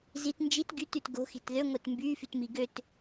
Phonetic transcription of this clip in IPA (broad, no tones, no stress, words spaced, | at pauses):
zit nd͡ʒit ɡytyt ɡo̤xi̤t ðøŋʷet mbyfytmi ɡøt